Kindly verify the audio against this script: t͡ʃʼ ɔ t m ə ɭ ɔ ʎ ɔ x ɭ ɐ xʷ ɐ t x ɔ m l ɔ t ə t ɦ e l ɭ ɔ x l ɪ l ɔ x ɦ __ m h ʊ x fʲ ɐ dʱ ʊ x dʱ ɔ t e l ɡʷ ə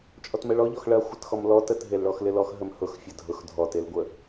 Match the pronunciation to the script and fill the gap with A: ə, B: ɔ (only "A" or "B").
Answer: A